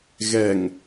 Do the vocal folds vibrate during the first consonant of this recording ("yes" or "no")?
yes